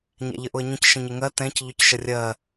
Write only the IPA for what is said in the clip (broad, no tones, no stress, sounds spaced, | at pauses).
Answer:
ɲ æ̰ ʎ ə ʔ ʊ ə̯ ɲ ə̃ c ʃ ə̃ ɲ ɪ ŋ ɜ t ɛ̃ c ʎ ʊ c ʃ ə rʲ ɜ